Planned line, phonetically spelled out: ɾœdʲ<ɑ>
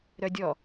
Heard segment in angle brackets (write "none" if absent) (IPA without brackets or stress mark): ɔ